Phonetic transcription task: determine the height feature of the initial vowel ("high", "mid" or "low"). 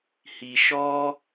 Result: high